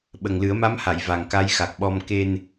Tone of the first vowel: low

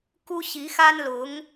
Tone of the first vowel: high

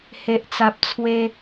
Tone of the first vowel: low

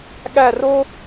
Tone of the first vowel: falling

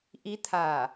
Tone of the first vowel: rising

